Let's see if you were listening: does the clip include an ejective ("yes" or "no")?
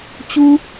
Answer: no